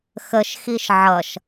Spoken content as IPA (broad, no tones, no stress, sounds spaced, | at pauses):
x ə ʃ x i ʃ ʕ ʌ ʃ